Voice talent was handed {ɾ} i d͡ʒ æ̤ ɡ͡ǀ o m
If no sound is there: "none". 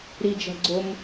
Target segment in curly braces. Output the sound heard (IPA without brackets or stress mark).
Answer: ɾ